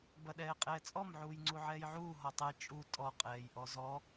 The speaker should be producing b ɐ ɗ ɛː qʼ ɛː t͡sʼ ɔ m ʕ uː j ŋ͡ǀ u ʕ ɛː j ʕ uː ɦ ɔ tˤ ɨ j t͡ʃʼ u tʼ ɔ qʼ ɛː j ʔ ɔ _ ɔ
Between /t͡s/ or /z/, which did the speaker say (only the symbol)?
z